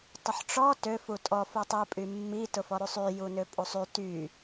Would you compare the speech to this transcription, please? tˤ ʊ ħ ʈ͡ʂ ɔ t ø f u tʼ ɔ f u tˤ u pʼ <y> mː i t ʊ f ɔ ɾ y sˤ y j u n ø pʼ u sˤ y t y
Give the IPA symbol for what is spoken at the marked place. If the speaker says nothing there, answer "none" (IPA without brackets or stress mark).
y